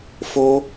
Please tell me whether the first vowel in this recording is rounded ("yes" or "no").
yes